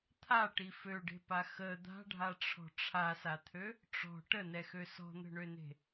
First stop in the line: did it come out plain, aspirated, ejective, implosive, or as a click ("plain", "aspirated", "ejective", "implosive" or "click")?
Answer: aspirated